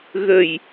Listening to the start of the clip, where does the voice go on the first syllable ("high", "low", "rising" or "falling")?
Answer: low